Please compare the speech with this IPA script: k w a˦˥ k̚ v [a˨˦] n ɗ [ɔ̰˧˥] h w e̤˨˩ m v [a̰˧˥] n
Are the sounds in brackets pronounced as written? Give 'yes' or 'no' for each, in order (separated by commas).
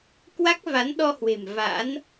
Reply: yes, no, yes